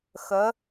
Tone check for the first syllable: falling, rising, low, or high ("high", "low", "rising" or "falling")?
rising